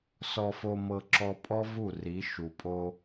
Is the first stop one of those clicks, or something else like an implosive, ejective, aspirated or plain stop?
click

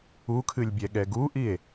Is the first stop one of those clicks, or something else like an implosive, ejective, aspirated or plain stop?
aspirated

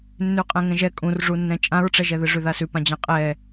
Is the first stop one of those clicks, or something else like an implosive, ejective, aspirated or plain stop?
ejective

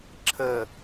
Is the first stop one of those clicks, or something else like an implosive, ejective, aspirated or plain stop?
click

